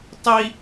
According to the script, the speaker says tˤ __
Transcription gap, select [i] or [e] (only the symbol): i